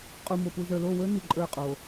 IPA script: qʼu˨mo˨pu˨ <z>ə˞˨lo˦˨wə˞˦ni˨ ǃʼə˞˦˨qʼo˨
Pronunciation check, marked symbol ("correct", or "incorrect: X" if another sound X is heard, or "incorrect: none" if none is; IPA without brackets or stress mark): correct